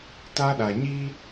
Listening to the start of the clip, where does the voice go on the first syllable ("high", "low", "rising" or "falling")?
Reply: high